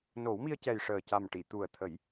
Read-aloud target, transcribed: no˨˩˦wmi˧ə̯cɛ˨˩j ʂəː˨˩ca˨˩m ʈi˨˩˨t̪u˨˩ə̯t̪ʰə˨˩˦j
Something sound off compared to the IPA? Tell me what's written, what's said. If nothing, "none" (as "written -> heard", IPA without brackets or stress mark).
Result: none